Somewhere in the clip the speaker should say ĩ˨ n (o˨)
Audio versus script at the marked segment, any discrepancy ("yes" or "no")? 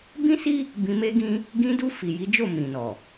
yes